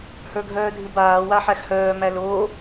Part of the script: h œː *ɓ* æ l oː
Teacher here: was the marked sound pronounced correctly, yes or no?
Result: no